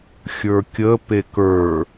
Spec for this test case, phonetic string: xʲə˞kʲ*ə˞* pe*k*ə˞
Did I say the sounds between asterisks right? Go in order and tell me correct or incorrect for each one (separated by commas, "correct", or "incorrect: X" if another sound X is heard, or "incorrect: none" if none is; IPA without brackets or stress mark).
incorrect: ə, correct